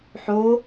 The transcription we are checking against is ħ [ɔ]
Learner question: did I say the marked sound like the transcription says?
no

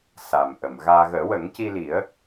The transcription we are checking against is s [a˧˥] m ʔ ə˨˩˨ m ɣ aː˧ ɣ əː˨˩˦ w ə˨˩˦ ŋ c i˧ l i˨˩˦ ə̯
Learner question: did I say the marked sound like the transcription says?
no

